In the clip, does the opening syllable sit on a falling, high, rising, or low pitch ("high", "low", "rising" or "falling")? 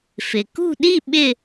low